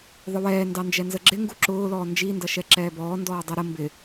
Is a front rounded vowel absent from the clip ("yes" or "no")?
yes